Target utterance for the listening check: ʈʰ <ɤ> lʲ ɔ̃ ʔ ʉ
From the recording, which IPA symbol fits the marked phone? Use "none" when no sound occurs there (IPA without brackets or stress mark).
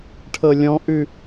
ɤ